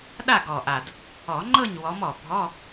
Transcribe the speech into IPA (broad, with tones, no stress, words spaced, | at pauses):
ɗa˥˨ɡɔ˨˩ʔa˨˩d | ɔ˨˩˦ŋ͡ǃɤ˥˨ɲwɔ˨˦mɔ˨˩ bʱɔ˧˥˧